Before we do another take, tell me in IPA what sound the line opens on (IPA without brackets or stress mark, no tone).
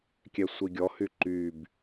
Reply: kʲ